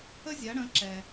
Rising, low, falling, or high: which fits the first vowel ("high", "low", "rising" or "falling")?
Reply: high